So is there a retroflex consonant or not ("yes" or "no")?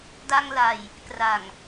no